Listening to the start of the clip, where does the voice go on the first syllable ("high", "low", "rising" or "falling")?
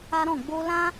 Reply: high